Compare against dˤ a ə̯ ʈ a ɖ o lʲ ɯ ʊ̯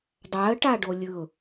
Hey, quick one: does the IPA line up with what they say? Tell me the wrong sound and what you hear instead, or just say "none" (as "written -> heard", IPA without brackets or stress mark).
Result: none